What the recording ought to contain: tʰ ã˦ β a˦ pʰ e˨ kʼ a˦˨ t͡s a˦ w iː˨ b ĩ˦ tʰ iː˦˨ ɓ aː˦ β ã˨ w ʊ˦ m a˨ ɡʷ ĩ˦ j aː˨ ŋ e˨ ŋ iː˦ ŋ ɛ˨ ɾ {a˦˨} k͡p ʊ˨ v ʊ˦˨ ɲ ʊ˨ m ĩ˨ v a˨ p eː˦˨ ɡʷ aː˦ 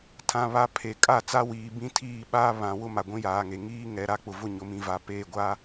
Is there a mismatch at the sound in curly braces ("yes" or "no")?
no